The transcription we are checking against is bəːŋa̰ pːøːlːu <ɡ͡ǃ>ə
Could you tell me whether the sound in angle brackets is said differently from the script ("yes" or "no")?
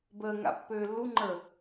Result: yes